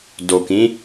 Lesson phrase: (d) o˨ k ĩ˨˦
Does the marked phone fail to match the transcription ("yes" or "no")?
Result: no